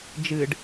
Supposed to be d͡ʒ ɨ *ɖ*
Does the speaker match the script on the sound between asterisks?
yes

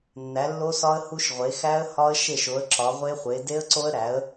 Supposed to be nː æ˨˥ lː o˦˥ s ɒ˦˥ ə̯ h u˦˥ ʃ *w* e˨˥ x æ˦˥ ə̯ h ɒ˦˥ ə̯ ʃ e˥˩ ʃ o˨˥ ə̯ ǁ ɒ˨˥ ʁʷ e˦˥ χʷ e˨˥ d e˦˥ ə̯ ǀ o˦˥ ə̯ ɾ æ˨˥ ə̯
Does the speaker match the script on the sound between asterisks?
no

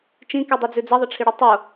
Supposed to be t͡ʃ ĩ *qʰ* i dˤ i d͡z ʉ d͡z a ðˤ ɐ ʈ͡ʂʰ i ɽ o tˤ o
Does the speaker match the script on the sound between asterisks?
no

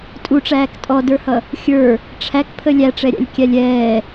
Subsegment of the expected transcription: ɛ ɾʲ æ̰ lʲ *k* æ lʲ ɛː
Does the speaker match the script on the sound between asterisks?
no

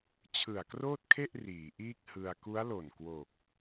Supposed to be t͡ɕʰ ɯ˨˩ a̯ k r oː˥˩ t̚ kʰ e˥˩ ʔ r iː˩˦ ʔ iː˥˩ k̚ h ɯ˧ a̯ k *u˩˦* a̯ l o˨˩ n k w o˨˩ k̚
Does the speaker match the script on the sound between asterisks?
no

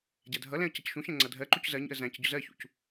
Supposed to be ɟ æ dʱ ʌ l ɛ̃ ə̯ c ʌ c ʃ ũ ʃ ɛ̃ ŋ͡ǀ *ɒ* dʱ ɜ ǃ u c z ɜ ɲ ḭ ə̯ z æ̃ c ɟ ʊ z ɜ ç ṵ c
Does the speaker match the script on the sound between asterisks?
no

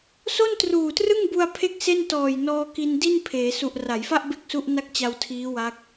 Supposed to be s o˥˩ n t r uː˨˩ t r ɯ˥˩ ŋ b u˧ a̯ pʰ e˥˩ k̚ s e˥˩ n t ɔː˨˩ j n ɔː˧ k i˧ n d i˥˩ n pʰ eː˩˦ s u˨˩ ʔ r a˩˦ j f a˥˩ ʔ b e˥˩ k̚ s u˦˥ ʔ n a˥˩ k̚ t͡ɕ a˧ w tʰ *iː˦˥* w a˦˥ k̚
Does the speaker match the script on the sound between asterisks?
yes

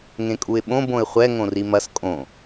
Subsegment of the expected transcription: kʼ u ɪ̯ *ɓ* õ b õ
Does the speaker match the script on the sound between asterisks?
yes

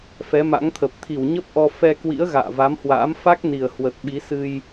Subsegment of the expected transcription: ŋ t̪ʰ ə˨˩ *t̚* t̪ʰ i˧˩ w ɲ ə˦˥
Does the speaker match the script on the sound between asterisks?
no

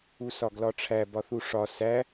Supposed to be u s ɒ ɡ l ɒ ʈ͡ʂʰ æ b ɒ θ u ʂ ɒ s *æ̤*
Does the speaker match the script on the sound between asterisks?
no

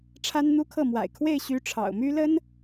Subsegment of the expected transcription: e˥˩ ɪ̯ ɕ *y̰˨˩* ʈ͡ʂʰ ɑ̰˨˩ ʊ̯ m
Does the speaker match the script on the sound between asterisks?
no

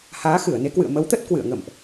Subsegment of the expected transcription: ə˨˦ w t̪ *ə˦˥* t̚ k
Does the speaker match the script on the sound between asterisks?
yes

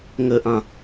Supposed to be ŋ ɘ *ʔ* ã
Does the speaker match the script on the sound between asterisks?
yes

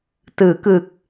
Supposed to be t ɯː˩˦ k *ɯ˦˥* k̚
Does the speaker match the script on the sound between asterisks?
no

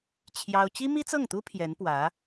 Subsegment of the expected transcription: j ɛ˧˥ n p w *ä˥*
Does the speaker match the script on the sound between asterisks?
no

